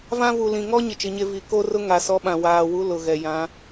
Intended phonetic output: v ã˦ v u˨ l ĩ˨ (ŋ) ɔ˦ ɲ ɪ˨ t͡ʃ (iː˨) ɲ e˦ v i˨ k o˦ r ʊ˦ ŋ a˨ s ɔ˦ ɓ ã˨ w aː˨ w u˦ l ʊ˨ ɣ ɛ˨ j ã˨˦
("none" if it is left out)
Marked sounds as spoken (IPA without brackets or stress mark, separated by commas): ŋ, i˨